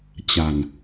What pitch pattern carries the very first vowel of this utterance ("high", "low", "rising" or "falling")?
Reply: low